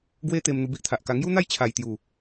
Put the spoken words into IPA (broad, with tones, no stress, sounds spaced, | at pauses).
ɡ w e˦ t̪ e˧ m n̪ u˧ b i˦ ʔ t̪ʰ a˨ ʔ k a˧ ŋ j u˦ n̪ a˥˧ j t͡ɕʰ a˨˩ j t̪ j u˨˩